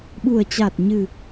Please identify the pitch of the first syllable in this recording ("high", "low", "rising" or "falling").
low